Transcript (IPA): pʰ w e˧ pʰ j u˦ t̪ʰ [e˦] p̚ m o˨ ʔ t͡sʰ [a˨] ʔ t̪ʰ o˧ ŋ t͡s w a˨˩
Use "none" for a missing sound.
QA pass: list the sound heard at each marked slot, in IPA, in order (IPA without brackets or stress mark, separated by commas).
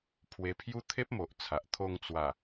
e˦, a˨